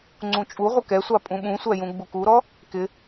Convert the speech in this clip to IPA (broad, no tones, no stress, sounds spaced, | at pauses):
ŋ͡ǀ ũ t͡ʃʼ u ʁʷ ə k ɛ sʷ ɑ pʼ ũ ɓ ũ sʷ æ j ũ ɡ͡b u k u ɾ ɔ | k ɪ